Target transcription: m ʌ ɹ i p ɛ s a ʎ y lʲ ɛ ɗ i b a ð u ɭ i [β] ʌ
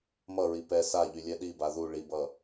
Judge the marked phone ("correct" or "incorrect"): incorrect